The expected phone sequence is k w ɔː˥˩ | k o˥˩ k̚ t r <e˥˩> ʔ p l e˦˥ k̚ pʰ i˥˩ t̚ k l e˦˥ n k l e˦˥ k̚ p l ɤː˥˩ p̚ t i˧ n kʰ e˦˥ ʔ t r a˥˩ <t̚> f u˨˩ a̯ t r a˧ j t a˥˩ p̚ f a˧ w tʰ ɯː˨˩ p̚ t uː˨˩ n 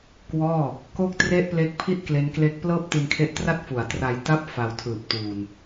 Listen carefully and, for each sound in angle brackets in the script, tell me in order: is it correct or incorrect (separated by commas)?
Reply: correct, correct